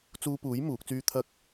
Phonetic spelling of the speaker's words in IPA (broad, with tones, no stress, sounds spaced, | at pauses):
t͡s uː˧ p uː˨˥ j m uː˨˥ k̚ t͡s yː˥ t̪ʰ ɐ˥ k̚